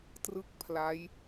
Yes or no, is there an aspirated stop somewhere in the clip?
yes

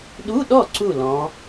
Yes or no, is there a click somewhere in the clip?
yes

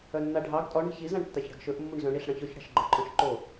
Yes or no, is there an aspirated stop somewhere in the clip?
no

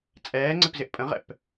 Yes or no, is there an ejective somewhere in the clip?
yes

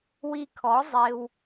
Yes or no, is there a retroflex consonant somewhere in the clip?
no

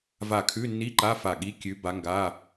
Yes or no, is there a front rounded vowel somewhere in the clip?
no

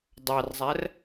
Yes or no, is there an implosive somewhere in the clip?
no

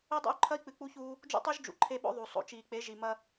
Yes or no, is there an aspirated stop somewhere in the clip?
yes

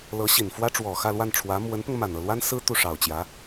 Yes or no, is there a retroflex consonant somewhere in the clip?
yes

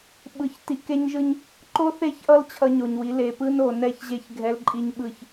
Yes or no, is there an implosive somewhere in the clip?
yes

